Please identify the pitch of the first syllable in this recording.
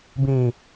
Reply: low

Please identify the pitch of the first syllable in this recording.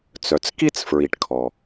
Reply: low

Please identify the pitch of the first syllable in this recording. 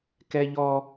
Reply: high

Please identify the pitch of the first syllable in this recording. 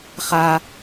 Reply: high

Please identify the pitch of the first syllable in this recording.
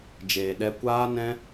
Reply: low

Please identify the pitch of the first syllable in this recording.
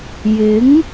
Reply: rising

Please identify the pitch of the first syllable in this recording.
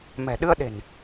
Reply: low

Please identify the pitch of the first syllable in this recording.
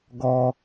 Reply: low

